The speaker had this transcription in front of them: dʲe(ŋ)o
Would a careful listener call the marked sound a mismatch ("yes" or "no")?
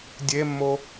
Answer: yes